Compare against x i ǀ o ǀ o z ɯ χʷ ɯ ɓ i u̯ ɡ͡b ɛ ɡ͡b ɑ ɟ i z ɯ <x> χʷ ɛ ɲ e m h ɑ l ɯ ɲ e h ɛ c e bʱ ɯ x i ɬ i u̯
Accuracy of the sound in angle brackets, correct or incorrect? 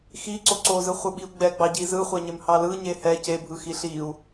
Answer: incorrect